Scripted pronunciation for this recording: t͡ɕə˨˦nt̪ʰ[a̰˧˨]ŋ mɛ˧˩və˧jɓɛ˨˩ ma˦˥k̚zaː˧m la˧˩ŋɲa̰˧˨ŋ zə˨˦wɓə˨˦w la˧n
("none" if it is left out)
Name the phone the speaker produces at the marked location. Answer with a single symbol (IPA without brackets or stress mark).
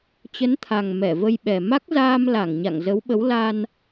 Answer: a˨˩